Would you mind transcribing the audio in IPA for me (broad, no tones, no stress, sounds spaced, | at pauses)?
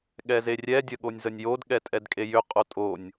ɠ ɛ z e rʲ ɛ dʲ ə ɠ o nʲ z ə nʲ j o d ɠ ɛ tʼ ɛ d kʼ e j ʏ qʼ o tʼ o nʲ